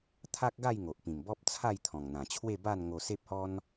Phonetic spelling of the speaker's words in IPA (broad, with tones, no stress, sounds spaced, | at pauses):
t̪ʰ a˦ k̚ ɡ a˥˧ j ŋ o˨ ʔ p ĩ˨˩ m b ɔ˦ p̚ t͡sʰ a˥˧ j t̪ʰ ɔ̃˨˩ ŋ n̪ ã˨˩ t͡ɕʰ w e˥˧ b a˥˧ n ŋ o˧ s e˦ p̚ h ɔ˦ n